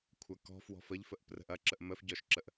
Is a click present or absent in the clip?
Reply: present